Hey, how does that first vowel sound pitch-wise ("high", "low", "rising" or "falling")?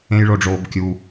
high